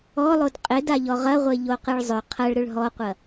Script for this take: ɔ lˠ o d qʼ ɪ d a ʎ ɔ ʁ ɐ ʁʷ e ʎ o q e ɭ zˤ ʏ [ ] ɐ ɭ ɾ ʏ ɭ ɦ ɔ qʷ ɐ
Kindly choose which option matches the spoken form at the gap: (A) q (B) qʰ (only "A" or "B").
B